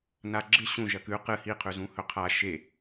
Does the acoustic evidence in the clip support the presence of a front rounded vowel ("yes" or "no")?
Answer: no